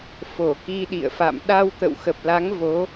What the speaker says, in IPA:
f o˧˩ k i˧ ɗ ḭ˧˨ ə̯ f a̰˧˨ m ɗ a˧ w t̪ ə̰˧˨ w x ə˨˩ p̚ l a˨˦ ŋ v o˨˦

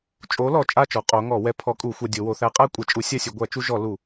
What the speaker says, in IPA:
t͡ʃʼ o˧˥ l ɔ˨˩ t͡ʃʼ a˥˧ t͡ʃ ɔ˩˧ qʼ o˧˥ ŋ ɔ˧˩˧ w ɛ˧˥ pʰ ɔ˧˥ kʼ u˧˩˧ xʷ a˧ dʲ o˩˧ w o˩˧ θ æ˧˥ qʼ æ˥˧ kʷʼ æ˧ t͡ʃʼ u˧˥ sʲ a˥˧ sʲ u˩˧ ɡʷ æ˧˩˧ t͡ʃ u˧ ʒ ɔ˧˩˧ l u˧˩˧

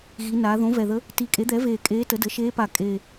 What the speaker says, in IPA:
ɣ i˩˧ n aː˩˧ ð õ˩˥ v ɛ˨˩ ð ə˧˥ | t i˨˩ kʼ e˩˥ d̪ ɛ˩˥ v eː˨˩ kʼ eː˧˥ t ə˩˥ d ə˩˥ ʃ eː˧˥ p a˨˩ kʼ e˨˩

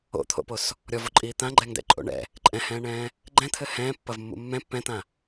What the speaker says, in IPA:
o̰ t̪ʰ o̰ p o s | ɾʲ ɔ v o ǃʼ iː t̪ ã ɡ͡ǃ ɛ ŋ d ɛ̰ ǃʼ o̰ ɳ ɛ̰ | ǃʼ ɛ̃ h ɛ̃ː ɳ ɛ̃ː | ɡ͡ǃ ɛ̃ t̪ʰ ɘ h ɛ̃ː pː ɐ v mː ṵ mː ɛ̃ pː ɛ̃ t̪ ã

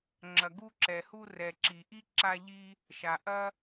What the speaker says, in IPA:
ŋ͡ǁ ɐ˨ ɡ u˦ ǁ ɛ˨ h u˦ r ɛ˨ ǁ i˨ ʔ i˥ ǁ a˦ ʎ i˦ | ʃ a˩ ʔ ɐ˦

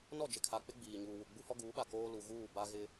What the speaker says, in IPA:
n ɔ˦˨ d͡ʒ ɪ˨ kʰ a˨ k͡p ɪ˦ ɡ͡b iː˨ ɲ uː˨ w u˨ ɡ͡b u˦ h ɔ˦ ɡ uː˨˦ ɓ a˨ k oː˦ l u˨ ɣ uː˦˨ b a˦ ɣ ɪ˦

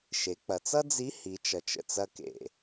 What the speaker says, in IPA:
ʃ e˩˧ k͡p ɐ˩ t͡s ʌ˥ d͡z i˧˥ h i˩˧ t͡ʃ ʌ˩ t͡ʃ ə̰˩ t͡s ɐ˧ k ḛ˩

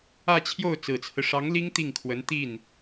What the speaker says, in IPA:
ä˥˧ t͡ɕʰ j o˥˩ ʊ̯ t͡s ɹ̩˨˩ t͡sʰ ɹ̩˦ ʂ ɑ˧˥ ŋ l i˥ ŋ t̪ i˥˩ ŋ kʰ w ə˧˥ n t̪ i˥˩ n

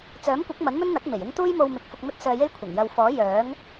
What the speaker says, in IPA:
t͡s œː˨˥ m kʷ ɐ˨˥ k̚ m ɐ˨˥ n m ɵ˥ n n̪ ɐ˨˥ k̚ m e˨˩ j ɪ˥ ŋ t̪ uː˥ j m o˧ w m ɪ˨˥ k̚ f ʊ˧ k̚ m ɵ˥ t̚ s œː˧ j e˥ j kʷʰ ɐ˨˩ ŋ j ɐ˧ w f ɔː˨˥ j œː˨˥ ŋ

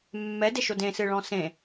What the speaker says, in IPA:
mː ɛ d e ʃ o d ẽ s ɨ ɭ ɔ̃ s ẽ

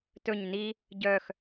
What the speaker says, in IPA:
t ɵ ɲ n i | ɟ œ x

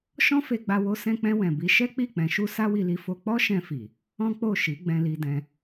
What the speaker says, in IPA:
ʃ ɔ̃˦ f e˧ ɡ͡b a˧ w o˧ s ɛ̃˧ k͡p ɛ̃˧ w ɛ̃˨ b i˧ ʃ ɛ˦ k͡p i˦˨ k͡p ɛ̃˨˦ ʃ u˦ s a˦ w i˧ l i˧ f o˧ k͡p ɔ˦ ʃ ɛ̃˧ f i˨ | ɔ̃˦ k͡p o˦˨ ʃ i˨˦ ɡ͡b ɛ̃˧ l i˧ d ɛ̃˧

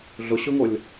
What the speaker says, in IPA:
ɮ ʊ ɕ ʊ ŋ o lʲ

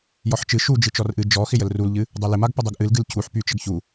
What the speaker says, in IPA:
j ɔ ħ t͡ʃ ɨ ʃ u d͡ʒ ɨ t͡ʃ ɔ r ʔ ɨ d͡ʒ ɔ x ɪ j ə l r u l ʎ ɨ | dˤ o l ɪ m a ɡ p ə dˤ o ɡ ʔ ɨ l ɡ ɨ l cʰ u ħ p y t͡ʃ ə ɡ ç u

